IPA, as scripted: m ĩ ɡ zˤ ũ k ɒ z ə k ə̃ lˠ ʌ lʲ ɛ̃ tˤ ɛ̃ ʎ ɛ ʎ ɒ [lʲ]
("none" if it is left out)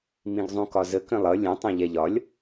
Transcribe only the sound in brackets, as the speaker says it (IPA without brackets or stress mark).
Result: lʲ